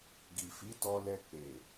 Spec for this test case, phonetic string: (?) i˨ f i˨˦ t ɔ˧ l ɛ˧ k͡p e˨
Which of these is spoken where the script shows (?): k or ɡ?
ɡ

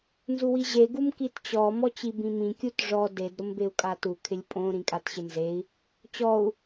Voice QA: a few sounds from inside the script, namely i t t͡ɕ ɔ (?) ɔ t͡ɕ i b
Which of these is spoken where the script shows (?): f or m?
m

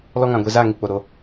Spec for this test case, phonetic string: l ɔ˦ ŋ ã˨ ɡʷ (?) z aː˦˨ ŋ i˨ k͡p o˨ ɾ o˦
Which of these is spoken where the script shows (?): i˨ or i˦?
i˨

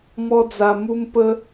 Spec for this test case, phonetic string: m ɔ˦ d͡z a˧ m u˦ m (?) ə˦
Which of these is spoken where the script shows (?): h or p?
p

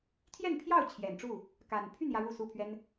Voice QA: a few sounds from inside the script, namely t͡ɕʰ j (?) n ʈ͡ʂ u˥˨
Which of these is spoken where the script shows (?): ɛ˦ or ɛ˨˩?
ɛ˨˩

